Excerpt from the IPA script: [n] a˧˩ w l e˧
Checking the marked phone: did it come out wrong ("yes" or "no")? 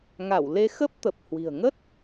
yes